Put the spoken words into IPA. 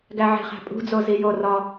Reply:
ɡæʕe̤χæ̤ pʼṳd͡zo zijorɒ

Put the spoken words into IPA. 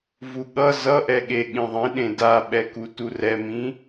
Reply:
vuɠʌ zʌʔɛɠeɠĩ ðˤĩɗẽ daɓɛku turɛmĩ

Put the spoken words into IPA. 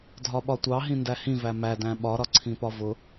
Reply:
dʱɒɓɒtʷɑ ɦĩndæhĩ væmædæ̃ ɓɒɾɒǀʰĩpɒ vʊ

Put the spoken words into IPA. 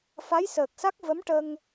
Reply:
fa˧˥jsəː˨˩k̚sa˦˥k̚ və˧˥mʈə˧ŋ

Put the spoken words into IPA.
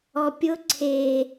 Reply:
ɔpʲʊ ǀʰe

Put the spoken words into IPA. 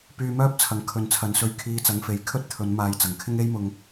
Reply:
pyː˧mœː˥p̚t͡sʰɐ˨ŋ kʰɵ˨nt͡sʰɐ˨nsɵ˧ɥ kʰiː˧t͡sɐ˨˧ŋfe˨j kʰɵ˥t̚t̪ʰɵ˨˧n maː˧jt͡sɐ˨ŋkʰɪ˥ŋ e˥jmʊ˧ŋ

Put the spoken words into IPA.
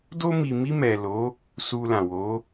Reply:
do˧mi˨mi˧ mɛ˨lo˨˦ | su˧lã˨ wo˨˦

